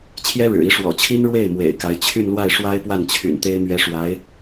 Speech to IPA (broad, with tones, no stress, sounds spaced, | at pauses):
t͡ɕʰ j ɛ˥ ɻ ɻ̩˨˩ i˧˥ ʂ w ɔ̰˨˩ t͡ɕʰ i˥ n ɻ w e˥˩ ɪ̯ m w ḛ˨˩ ɪ̯ k a˧˥ ɪ̯ t͡ɕʰ y˥˧ n l w a˥˩ ɪ̯ ʂ w a˥ ɪ̯ p w a˥˩ n t͡ɕʰ y̰˨˩ n t̪ e˥ ɪ̯ m ɥ ɛ˥ ʂ w a˧˥ ɪ̯